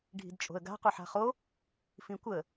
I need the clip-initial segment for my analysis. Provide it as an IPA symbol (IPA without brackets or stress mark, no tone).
ɖʱ